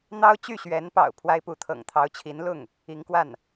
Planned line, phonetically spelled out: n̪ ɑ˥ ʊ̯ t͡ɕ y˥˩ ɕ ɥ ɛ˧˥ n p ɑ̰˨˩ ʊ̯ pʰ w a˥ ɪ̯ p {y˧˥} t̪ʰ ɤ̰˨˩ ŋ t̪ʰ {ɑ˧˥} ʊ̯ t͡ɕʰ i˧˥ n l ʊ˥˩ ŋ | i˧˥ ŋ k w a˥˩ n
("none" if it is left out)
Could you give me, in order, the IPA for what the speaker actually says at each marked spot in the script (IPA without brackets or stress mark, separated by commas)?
u˧˥, ɑ˧˥